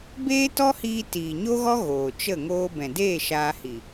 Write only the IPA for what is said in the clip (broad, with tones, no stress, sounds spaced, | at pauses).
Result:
b eː˦ t ɔ˦ h iː˧ t iː˨ ɲ o˦ ɣ ɔ˦ ɣ oː˨ t͡ʃ ə˦˨ ŋ oː˧ b ɛ̃˨ d eː˦˨ ʃ aː˧ h i˨